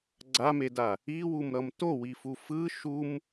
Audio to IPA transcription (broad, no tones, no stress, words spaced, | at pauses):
ɡ͡ǀameda | iwumɾʌm towifu fɯ ʃum